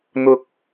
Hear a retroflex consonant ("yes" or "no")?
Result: no